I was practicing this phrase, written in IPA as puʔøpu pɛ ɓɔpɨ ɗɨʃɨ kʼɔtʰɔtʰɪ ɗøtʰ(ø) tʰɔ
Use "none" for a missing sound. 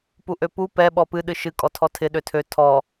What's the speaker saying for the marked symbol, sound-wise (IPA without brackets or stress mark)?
ø